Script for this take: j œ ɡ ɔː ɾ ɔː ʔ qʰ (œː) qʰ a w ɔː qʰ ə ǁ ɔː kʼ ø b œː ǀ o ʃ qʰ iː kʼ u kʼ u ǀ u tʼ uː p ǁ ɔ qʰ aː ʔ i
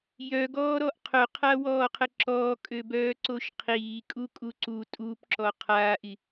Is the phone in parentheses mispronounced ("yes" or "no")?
yes